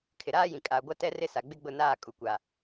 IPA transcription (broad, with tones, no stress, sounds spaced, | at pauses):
kʰ ɪ˨ ɾ aː˦ j ĩ˨ kʼ aː˨ ɡʷ a˦ t ɛ˦ r ɪ˦ s a˨ ɡ͡b ɪ˦ ɡ͡b ʊ˦˨ n aː˦˨ kʼ u˨ kʷ a˨